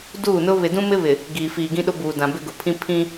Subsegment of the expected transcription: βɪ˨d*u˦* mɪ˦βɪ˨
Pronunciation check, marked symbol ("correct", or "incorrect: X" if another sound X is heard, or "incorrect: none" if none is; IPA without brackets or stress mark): incorrect: ũ˦